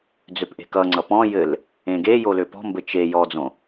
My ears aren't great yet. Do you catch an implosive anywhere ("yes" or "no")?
no